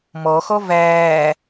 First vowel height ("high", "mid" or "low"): mid